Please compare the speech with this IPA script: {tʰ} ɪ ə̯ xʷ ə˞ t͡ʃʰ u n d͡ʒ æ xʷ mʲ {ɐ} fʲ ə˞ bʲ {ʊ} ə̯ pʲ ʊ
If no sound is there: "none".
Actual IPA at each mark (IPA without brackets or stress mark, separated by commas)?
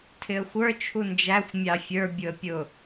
tʰ, ɑ, ʊ